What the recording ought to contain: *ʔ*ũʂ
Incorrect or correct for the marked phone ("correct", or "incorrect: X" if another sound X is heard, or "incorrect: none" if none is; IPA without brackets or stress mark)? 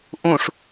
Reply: correct